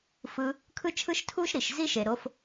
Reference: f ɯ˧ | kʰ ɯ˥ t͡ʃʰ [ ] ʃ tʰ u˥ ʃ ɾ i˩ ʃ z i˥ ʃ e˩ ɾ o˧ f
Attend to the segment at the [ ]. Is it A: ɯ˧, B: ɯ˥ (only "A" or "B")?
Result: B